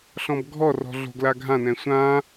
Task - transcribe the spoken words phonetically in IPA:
ɬ ɔ̃ b ɡʱ ɔ r ɔ̤ ɮ o̤ ɡ l a ɡʱ ã n ɛ̃ sʷ ã

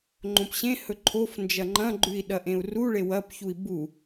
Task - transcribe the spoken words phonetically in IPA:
ŋ͡ǃ õ p ɕ ẽ h ɵ ǃʰ o f n d͡ʒ ɐ ŋ͡ǃ ɐ̃ ɡ͡ǃ ʉ i̯ ɗ ɐ ʔ ẽ u̯ r u ɭ e w ɐ p ç u i̯ b u

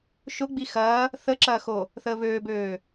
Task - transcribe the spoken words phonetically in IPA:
ʃ ʊ ɡ͡b i x ɐː | θ ə ǁ ɐː x o | θ əː β øː b øː

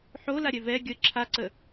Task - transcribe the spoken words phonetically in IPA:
ħ o l a ɾʲ ɛ v ɛ ɡʲ ə ǁʰ a ǀ ə

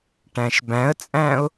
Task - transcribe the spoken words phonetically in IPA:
ʈ æ̃ ʃ b æ̃ ə̯ t͡sʼ æ̃ ʊ̯

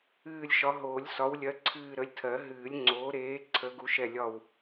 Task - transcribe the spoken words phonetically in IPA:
ɨː˦˨ lʲ ʃ ɒ˨˥ ɦ oː˨˩˦ lʲ s ɒ˨˥ w lʲ ɜ˨˥ ǀʰ ɨː˦˨ ɾ ə˨˥ lʲ tʰ ɜ˨˩˦ ɦ ɨː˨˩˦ lʲ ŋ͡ǀ oː˨˥ ɾ eː˨˥ ǀʰ ə˨˥ ɡ u˨˥ ʃ ɛ˦˨ lʲ ɒ˦˨ w

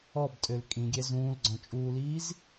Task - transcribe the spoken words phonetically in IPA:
ɔ b tʼ ø l kʼ ĩ ɡʲ ɛ z ũː l ɡ͡ǀ ɔ̃ t͡ʃʼ uː l iː z

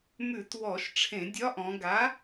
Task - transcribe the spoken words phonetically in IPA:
m ʉ˧˩˧ t w ɔ˧˩˧ ʃ ʈ͡ʂʰ ẽ˧˩˧ dʲ ɒ˨˥ ʔ ɔ̃˩˧ ɡ a˨˥

